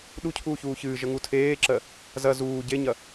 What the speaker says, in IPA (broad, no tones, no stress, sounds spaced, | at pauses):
ɗ u cʰ uː ç uː ç ɨː ʒ ə ŋ u tʰ eː ǁ ɜ | z ɐ z uː ɟ e ɲ ɐ